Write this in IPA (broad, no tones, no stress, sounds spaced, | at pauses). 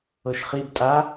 ɤ ʃ χ i b tʼ a